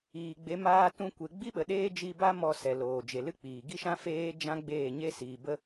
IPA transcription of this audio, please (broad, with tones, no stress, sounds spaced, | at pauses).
iː˨ ɡ͡b e˨˦ m aː˧ t ũ˧ kʷ e˨ ɡ͡b i˦ ɓ ə˨ ɗ eː˦ d͡ʒ i˧ b a˦ m ɔ˧ s ɛ˨ l oː˨ d͡ʒ e˨ l ɨ˦ k͡p iː˨ ɡ i˦ ʃ ã˦ f eː˦ d͡ʒ ã˦ ɡ͡b eː˦˨ ɲ e˦ s iː˨ b ə˧